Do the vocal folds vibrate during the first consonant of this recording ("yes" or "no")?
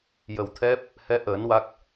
yes